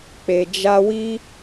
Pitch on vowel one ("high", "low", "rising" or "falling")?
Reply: low